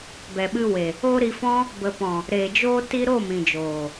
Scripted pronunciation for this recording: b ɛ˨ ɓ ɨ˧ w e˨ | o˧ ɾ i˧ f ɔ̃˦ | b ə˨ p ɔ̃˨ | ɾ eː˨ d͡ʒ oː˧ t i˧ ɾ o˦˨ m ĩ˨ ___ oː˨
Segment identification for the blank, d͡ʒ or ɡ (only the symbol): d͡ʒ